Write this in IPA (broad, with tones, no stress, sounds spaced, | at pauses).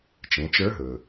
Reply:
t͡ʃ ẽ˩˧ t͡ʃ ə˞˧˥ ɦ ɵ˩